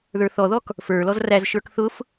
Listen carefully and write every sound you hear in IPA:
ðə˞θɔðɔk | fə˞lɔz ræzʃə˞k θʊf

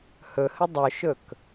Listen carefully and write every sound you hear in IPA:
hɵhə dˤɵʃɵk

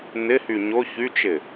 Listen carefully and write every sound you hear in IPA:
n̪ɪhy ɲʊ çyt͡ʃɪ

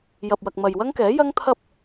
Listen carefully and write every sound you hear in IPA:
jɐ˨p̚wɐ˨k̚ mɐ˨jwɐ˥ŋkɛː˨˥ jɐ˥ŋt̪ʰɐ˥p̚

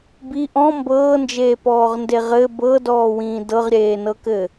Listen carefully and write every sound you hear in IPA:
bi ʔɔ̃ mbɤːnd͡ʒeːpɔːʁnde ʁɘ bɤdɔːwĩː dɤʁɾʲeːnɤkɘ

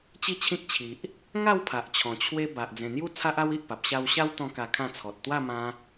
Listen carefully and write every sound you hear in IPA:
t͡ɕi˥˧t͡ɕʰĩ˦k̚t͡ɕʰi˨ʔ | ŋa˥˧w pʰa˨ʔt͡ɕʰɔ̃˨˩ t͡ɕʰwe˦ ba˨ʔ d͡zẽ˨˩n̪ju˦ t͡sʰa˦ʔa˦wi˨ʔpa˨p̚ ɕa˧wɕa˦wt̪ɔ̃˧ ka˧kʰã˥˧t͡sʰɔ˨t̚ t̪wa˥˧mã˧

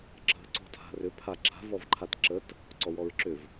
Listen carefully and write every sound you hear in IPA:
ǁə̤ ǀɔ̤tʰa̤rʏ pʰaǁa̤ vɔvǃʰatǁət | ǀɔwɔɹǁʏv

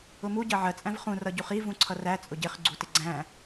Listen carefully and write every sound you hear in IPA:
ʊmu ɟɜʕɜ t͡sʼæ̃vχũ rʌɟuχi vũǀʰʌræ t͡sʼʊɟɪχ ɡ͡ǀutɪɡ͡ǀæ̃

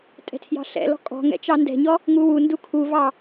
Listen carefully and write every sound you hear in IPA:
tʼɛ̤tʰjɑ̤ɬɛ̰lɔ̤ kʼɔ̤ŋɛ̰ t͡ʃɑndɛ̤ɲɔ | ŋuwundu kʰuvɑ

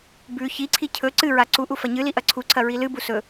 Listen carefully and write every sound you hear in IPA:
bʉ çiǀʰi cʰɵ ǀɨɹa ǀuʔu fɐɲɨli ʔɐǀʰuǀʰɐ ɹilɨbu sɵ

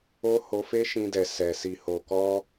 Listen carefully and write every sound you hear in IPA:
o˦ho˧fe˦ ʃĩ˧dɛ˨ sɛ˨ si˨ho˨ kɔ˧

